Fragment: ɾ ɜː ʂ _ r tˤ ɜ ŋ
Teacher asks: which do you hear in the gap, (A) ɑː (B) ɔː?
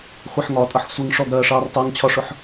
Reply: A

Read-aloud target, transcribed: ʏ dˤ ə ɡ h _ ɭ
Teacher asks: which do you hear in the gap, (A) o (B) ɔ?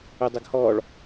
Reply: B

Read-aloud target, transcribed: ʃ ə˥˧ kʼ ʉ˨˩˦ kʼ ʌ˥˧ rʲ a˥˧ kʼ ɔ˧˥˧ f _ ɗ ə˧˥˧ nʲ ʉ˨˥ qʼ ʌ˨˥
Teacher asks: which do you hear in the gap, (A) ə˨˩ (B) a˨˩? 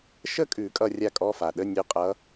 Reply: B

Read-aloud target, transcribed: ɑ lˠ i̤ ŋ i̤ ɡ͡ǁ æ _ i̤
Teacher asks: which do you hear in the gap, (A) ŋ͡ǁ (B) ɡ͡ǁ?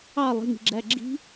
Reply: B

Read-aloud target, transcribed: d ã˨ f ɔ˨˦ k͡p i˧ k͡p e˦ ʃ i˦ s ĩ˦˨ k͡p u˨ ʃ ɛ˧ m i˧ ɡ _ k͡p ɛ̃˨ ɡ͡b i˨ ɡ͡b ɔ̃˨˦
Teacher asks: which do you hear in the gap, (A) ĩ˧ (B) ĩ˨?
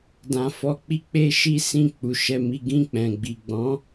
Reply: A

